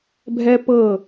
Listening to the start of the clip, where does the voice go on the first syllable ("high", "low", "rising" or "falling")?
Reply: high